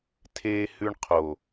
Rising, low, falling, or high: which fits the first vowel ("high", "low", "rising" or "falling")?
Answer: high